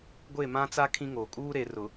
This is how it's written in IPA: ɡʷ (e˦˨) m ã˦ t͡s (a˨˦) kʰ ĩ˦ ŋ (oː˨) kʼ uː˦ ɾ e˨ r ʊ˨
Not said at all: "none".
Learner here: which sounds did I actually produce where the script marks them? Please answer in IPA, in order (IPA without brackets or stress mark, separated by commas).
e˦˨, a˦, oː˨